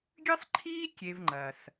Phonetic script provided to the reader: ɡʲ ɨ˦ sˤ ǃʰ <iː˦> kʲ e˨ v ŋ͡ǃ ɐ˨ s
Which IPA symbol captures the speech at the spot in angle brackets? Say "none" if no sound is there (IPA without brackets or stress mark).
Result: iː˦